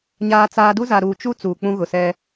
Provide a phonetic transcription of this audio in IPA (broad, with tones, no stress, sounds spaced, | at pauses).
ɲ aː˦ t͡s aː˦ d u˦ z a˨ ɾ uː˨ t͡ʃ u˦ t͡s uː˨ k͡p ũ˦ ɣ ʊ˨ s ɛ˦